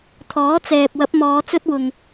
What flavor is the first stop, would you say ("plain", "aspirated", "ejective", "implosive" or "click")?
aspirated